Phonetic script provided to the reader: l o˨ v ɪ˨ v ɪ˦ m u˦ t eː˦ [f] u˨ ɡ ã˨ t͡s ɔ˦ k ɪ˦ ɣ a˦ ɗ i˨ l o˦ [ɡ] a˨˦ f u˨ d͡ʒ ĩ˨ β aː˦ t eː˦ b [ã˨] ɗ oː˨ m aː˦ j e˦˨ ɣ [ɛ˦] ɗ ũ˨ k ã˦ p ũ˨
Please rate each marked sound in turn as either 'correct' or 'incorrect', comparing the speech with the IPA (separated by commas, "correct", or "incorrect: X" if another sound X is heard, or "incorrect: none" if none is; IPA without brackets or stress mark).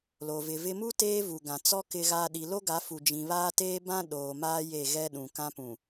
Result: incorrect: v, correct, incorrect: ã˦, correct